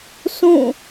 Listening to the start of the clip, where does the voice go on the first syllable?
falling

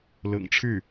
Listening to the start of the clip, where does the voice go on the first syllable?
low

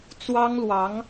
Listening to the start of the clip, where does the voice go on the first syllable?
high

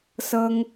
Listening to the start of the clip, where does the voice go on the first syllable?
high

